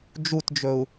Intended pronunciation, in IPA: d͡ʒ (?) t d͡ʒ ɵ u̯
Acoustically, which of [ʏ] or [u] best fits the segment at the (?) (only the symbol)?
u